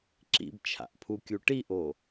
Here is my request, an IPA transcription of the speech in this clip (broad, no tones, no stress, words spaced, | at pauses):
ǁḭbt͡ʃʰa̰ʔpʰukʲu ʈiʔo